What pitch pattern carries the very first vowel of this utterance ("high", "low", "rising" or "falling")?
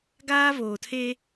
high